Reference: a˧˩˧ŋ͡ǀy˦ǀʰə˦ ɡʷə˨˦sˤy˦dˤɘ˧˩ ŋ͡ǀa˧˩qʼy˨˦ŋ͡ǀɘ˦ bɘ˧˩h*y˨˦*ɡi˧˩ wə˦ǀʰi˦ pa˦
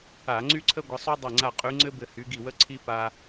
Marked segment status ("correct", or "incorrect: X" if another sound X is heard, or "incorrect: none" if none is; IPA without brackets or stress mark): correct